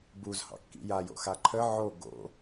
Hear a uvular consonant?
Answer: no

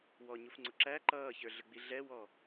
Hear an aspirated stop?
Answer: no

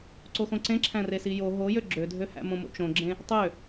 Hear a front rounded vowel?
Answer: yes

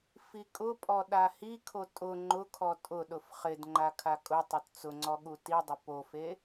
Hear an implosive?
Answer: yes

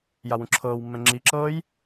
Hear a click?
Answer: yes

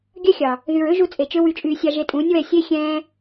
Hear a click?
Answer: no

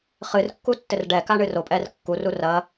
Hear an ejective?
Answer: yes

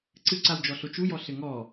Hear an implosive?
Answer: no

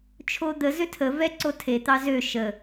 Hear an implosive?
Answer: no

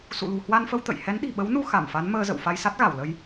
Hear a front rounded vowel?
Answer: no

